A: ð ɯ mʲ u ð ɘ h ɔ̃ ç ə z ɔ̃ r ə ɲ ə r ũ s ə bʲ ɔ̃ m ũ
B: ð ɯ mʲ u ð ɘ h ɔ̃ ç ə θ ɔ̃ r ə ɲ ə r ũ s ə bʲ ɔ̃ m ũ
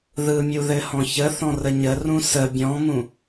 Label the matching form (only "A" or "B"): B